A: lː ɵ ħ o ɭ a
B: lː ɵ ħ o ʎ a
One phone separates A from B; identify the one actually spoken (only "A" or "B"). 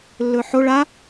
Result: A